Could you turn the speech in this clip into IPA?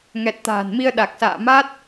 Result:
ŋ ɛ˨˩ t̚ t̪ a̤ː˨˩ n m i˧ ə̯ ɗ a˨˩ k̚ s a̰ː˧˨ m a˦˥ t̚

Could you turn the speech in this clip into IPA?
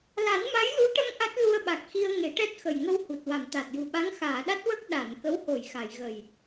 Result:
l a˨˩˦ n m a˧˥ j l u˧˥ ʈ ə˧ ŋ ʔ a˦˥ t̚ l u˧ ə̯ ɓ a˨˩ k̚ x i˧ ə̯ ŋ e˨˩˦ ʈ ɛ˦˥ t̚ x ə˨˩ j ŋ ə˧ w h u˨˩ t̚ w a˨˩˨ m t̪ a˨˩ t̚ j u˨˩ ɓ a˧˥ ŋ x aː˨˩˨ ɗ a˦˥ t̚ w ə˦˥ k̚ ɗ a˨˩˨ n k ə˧˥ w h o˨˩˨ j x a˨˩˨ j ɣ ə˨˩ j

